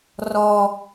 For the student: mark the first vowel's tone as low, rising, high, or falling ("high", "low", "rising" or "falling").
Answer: high